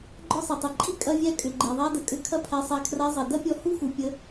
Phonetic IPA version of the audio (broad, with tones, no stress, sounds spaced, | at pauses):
ɡ͡ǃ ɔ˦ sˤ i˨ tˤ i˨ ǃʼ i˦ kʼ ɐ˦ vʲ æ˦ kʼ ʏ˨ ɡ͡ǃ i˨ ðˤ æ˦ d ə˨ kʼ ʏ˦˨ kʰ ɐ˦ pʰ æ˧ sˤ æ˧ kʰ r a˧ zˤ i˨ d ɐ˦ pʲ ɔ˧ h u˦ x u˨ pʲ ə˧